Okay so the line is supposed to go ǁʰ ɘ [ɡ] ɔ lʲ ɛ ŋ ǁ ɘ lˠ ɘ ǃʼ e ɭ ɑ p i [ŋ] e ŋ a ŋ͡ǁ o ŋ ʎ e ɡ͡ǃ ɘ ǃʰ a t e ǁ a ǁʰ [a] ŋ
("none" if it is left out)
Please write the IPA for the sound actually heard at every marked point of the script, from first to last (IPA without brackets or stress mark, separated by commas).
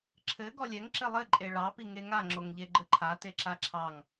ɡ, ŋ, ɑ